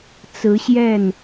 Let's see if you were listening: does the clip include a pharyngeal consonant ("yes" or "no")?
no